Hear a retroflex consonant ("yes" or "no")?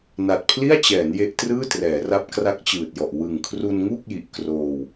no